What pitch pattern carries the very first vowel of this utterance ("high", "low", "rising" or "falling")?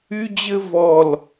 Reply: high